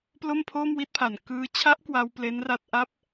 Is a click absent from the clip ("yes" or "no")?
yes